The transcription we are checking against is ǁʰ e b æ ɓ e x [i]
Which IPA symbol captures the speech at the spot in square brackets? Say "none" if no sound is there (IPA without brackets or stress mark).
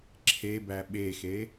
e